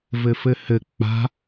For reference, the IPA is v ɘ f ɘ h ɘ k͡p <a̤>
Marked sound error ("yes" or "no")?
no